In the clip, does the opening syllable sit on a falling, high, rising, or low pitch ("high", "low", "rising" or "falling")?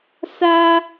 high